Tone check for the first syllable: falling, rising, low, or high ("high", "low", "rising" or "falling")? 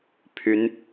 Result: rising